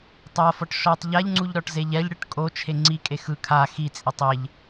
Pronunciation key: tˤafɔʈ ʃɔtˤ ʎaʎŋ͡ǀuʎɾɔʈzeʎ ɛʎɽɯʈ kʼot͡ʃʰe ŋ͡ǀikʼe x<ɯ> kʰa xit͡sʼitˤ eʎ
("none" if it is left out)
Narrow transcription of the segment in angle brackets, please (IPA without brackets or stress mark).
ɯ